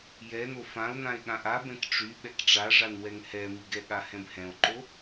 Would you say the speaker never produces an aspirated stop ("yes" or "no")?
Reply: yes